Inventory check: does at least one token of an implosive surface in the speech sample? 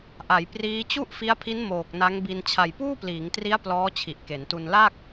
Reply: no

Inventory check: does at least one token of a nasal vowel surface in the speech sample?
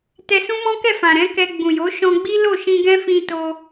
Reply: yes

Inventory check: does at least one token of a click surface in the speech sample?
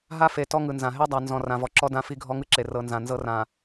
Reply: yes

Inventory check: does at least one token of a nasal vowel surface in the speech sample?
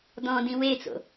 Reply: yes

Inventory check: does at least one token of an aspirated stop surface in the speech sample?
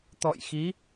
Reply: no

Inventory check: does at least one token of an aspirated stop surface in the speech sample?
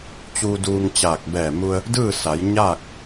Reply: no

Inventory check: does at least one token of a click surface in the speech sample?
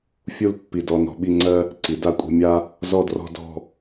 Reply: yes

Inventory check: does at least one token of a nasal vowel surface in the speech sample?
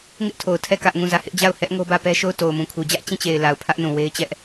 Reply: yes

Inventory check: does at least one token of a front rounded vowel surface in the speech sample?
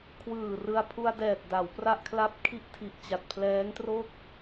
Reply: no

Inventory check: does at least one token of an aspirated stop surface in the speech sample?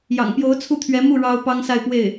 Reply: yes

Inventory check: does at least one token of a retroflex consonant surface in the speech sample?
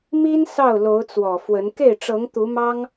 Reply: yes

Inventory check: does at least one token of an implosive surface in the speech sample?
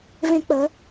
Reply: no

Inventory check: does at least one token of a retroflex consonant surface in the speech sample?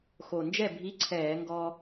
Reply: no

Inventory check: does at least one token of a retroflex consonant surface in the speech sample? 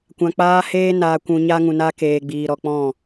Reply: no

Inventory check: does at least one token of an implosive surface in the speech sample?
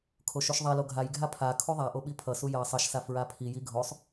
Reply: yes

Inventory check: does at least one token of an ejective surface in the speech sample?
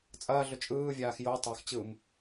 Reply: yes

